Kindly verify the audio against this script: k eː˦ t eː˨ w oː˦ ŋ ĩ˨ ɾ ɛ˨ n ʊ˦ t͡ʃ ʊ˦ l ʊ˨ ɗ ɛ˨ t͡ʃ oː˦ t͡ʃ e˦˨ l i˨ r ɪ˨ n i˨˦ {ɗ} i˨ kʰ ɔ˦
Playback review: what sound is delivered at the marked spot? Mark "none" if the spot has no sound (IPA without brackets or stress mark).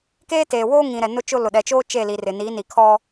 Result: n